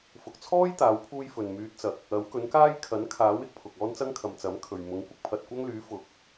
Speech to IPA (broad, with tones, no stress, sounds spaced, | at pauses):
f ʊ˨ k̚ t͡sʰ ɔː˥ j t̪ aː˨˥ w pʰ uː˥ j f ɵ˨ n m yː˧ t̚ t͡s ɐ˨ k̚ | ɐ˨˥ w k ɵ˨˥ n k aː˥ j kʰ ɐ˨˥ n kʰ aː˨˥ w ɪ˨ k̚ pʰ ʊ˨ k̚ ɔː˥ n t͡s ɐ˥ ŋ kʰ ɐ˨˧ m t͡s ɐ˨˥ m kʰ ɵ˨ ɥ m ʊ˨˥ ŋ kʷ ɪ˥ k̚ pʰ ɐ˨ t̚ kʷ ɐ˥ ŋ l yː˨˥ f ʊ˨ k̚